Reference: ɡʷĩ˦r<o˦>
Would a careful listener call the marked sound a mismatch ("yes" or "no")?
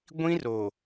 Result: yes